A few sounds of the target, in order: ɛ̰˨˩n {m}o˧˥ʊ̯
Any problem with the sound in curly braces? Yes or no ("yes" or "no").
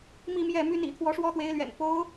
yes